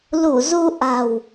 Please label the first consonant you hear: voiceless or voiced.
voiced